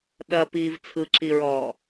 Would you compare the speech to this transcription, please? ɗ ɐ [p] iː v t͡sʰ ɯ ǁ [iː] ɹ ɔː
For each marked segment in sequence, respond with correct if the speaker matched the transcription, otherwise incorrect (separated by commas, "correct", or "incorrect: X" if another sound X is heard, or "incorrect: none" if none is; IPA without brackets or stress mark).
correct, incorrect: i